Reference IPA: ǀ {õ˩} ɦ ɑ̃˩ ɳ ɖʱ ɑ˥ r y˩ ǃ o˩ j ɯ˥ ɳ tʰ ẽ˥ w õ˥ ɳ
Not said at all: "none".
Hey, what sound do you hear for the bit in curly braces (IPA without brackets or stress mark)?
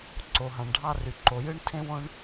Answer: o˩